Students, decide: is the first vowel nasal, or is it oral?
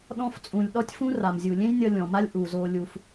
nasal